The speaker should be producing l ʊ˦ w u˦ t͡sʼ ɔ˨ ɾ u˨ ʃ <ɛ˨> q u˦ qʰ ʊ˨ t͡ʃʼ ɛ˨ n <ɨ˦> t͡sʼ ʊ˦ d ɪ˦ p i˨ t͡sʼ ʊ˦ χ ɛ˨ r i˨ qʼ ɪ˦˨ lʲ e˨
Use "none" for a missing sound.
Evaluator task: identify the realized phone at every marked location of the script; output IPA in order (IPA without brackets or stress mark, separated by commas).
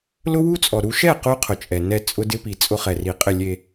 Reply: ɛ˦˨, ɛ˦